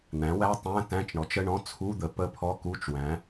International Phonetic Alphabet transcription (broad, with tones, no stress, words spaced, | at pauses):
n̪æ̃˩˥wæ˧˥˧ tˤæ̃˧˥˧ tæ̃˧˥˧t͡ʃɳɔ˩˥t͡ʃə˧˥˧ɳɔ̃˧˥˧ t͡sʰu˧˥˧d̪ə˩˥ pə˧˥˧pʰɔ˧˥˧ku˧˥˧t͡ʃwæ̃˩˥